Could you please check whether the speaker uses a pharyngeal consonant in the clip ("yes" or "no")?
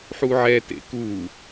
yes